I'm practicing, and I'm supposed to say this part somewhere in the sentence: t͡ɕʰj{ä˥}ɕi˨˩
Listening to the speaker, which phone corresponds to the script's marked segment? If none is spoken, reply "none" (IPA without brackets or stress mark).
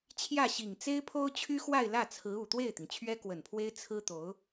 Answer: ä˥˩